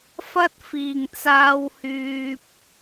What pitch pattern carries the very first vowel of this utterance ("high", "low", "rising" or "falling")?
high